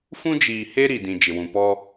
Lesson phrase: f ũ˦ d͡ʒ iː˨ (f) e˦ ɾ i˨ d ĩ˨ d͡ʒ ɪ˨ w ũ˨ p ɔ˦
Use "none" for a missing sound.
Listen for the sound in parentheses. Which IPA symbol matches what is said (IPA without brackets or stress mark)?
h